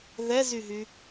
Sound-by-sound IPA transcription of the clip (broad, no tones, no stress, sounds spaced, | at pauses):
ð ɛ z y ɦ y